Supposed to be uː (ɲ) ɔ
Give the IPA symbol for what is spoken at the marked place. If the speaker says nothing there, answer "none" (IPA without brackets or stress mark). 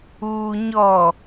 ɲ